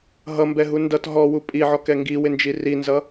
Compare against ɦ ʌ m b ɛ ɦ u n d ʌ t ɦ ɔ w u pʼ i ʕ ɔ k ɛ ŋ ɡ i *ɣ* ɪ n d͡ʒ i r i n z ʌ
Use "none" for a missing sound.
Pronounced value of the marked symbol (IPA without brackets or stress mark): w